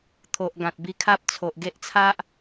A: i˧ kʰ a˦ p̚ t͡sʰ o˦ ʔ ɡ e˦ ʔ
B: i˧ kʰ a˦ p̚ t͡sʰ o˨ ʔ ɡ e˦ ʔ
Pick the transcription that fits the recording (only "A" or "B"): B